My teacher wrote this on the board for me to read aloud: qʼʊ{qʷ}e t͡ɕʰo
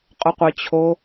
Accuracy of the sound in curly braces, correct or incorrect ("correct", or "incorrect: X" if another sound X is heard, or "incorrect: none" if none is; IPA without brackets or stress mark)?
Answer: correct